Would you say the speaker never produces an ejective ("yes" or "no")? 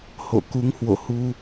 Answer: yes